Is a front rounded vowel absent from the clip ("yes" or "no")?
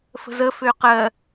no